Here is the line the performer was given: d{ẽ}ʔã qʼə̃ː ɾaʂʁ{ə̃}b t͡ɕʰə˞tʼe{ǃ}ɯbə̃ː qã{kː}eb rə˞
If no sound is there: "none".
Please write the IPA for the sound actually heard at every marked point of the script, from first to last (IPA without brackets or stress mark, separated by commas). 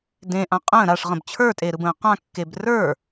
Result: ẽ, ə̃, ɾ, kː